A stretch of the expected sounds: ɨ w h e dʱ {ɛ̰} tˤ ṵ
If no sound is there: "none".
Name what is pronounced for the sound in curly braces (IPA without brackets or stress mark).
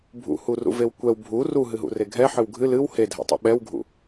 ɛ̰